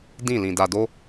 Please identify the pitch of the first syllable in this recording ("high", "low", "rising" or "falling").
falling